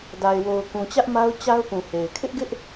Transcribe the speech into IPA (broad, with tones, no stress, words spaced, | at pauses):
da˨ɪ̯wo˨ʊ̯kũ˨t͡ɕä˦ʔ ma˦ʊ̯t͡ɕa˦ʊ̯pũ˨ he˨ɪ̯ kʰɪ˦ʔɡɪ˦ʔ